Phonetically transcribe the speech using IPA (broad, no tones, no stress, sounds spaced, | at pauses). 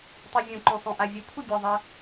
tˤ i vʲ ũ ǃ õ sˤ õ ʔ a vʲ ɵ kʷʰ ɨ bʲ ɐ ðˤ ɐ